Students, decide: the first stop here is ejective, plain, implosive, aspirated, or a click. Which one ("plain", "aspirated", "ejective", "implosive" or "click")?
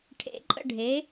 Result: aspirated